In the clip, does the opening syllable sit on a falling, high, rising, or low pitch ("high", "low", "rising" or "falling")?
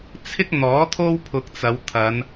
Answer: high